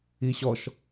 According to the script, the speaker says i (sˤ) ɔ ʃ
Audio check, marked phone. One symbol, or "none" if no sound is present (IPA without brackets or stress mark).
ɕ